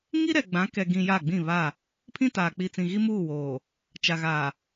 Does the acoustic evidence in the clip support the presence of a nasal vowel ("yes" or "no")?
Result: yes